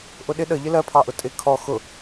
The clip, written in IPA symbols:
ʔʊɗɪ ɗə ʎɪlɜpʰɑʔʊ tʼɪ kʰɔ xʊ

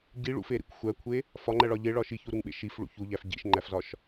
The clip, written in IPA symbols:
ɟiɭṵfeɾḭkʷ xʷækʷʰe | fɒŋ͡ǃæɭɒ ʎeɭɒ ʃiçuɾuŋɓḛ ʃifɭṵ çuʎæf ɟḭʃŋ͡ǃæfzɒʃ

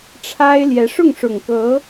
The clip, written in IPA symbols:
ʈ͡ʂʰa˥ɪ̯ljɛ˧˥ ʂʊ˥˩ŋʂʊ˨˩ŋkɤ˧˥

